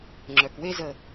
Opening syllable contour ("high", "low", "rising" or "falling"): low